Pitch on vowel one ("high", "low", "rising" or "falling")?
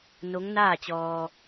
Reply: rising